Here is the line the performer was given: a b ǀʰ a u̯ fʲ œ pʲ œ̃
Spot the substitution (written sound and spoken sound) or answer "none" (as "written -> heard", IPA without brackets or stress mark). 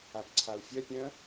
none